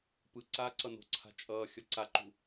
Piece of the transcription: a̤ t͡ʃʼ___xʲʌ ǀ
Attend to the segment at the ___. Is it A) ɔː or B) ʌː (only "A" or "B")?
B